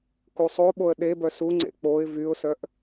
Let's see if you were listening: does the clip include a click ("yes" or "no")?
yes